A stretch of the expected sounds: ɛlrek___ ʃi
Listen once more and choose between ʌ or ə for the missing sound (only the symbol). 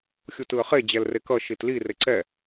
ʌ